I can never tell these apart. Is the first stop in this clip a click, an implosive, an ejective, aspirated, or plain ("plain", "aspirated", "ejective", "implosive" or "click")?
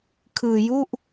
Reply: aspirated